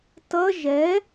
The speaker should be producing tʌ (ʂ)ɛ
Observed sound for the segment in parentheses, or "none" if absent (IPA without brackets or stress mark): ʒ